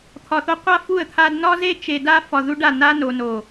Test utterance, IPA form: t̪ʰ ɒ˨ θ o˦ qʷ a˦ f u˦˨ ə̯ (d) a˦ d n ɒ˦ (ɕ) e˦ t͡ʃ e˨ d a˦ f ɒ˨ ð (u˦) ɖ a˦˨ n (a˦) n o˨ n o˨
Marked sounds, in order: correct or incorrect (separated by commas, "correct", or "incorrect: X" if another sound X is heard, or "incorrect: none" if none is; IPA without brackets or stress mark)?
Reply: incorrect: t̪ʰ, incorrect: z, correct, correct